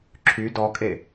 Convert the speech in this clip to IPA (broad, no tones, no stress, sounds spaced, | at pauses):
ǁʰ y d ɔ kʼ e